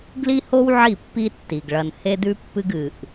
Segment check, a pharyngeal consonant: present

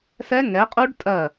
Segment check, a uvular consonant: present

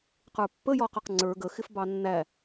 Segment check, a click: present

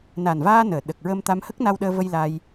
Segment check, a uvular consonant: absent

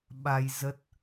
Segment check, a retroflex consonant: absent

